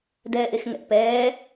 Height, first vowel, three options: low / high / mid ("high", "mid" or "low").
mid